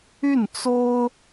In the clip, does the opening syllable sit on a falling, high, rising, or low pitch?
falling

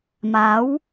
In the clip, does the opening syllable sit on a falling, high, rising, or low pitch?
rising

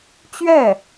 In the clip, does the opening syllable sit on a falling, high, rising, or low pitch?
falling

